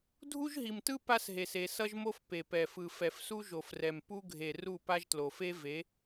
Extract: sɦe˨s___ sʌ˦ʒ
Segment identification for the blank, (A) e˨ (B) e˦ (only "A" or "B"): A